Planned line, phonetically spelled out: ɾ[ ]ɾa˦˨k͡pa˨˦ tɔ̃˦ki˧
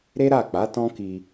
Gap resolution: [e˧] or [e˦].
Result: e˦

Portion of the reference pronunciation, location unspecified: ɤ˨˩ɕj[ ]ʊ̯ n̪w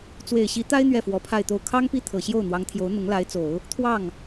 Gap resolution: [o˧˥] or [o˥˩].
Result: o˥˩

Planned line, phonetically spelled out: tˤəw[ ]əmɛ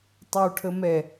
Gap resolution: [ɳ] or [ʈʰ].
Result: ʈʰ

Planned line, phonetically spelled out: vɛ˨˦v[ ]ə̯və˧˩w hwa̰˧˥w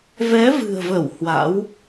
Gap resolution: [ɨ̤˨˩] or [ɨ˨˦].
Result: ɨ̤˨˩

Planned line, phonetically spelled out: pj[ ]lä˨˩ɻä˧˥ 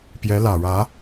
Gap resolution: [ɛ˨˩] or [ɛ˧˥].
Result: ɛ˧˥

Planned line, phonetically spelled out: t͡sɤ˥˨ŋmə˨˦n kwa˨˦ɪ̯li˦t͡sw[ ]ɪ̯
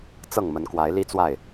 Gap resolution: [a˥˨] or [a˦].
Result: a˥˨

